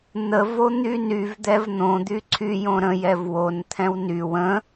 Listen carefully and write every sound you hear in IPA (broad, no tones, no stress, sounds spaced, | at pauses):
n̪ ə v o n̪ y n y v d̪ ɛ v n̪ õ d̪ y ǀʰ y j õ ɾ ə̃ j ɛ v w o n t̪ʰ ɛ̃ w n y w ə̃